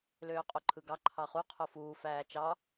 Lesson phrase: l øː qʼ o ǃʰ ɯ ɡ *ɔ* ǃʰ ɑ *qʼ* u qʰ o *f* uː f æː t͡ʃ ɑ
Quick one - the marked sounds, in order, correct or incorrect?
incorrect, incorrect, correct

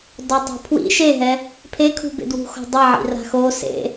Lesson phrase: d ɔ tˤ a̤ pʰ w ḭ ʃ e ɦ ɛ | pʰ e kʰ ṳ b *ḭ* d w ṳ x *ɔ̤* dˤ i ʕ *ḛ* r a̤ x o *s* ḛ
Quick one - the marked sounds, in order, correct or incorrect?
incorrect, correct, incorrect, correct

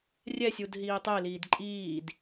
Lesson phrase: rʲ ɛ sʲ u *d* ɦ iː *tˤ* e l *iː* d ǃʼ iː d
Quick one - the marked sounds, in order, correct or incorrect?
correct, correct, correct

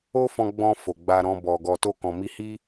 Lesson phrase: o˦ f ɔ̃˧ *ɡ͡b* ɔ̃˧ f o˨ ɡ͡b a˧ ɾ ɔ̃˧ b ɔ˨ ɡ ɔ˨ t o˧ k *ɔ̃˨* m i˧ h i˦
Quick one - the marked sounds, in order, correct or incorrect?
correct, correct

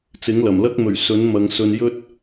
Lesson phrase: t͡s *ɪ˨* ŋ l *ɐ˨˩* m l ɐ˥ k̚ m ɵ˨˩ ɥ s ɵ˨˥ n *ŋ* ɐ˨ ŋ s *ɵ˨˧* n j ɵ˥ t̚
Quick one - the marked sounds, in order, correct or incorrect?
incorrect, correct, incorrect, incorrect

